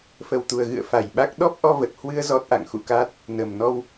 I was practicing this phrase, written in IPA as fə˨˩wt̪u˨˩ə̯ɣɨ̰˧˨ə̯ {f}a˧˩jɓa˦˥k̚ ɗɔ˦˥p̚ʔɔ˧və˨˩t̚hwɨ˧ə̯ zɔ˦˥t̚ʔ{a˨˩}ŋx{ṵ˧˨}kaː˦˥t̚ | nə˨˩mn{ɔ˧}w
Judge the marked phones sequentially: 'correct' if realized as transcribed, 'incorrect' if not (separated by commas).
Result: correct, incorrect, correct, correct